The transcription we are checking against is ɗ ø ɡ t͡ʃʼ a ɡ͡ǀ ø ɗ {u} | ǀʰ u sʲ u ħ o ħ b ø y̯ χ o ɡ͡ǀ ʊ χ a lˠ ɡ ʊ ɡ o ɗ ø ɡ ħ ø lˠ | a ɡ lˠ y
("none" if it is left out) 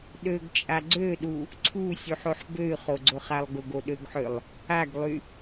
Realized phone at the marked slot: u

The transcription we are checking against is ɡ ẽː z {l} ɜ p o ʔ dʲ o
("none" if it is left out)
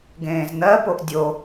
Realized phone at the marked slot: n̪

